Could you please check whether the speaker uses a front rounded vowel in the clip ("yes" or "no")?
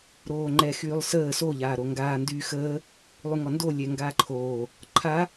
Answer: yes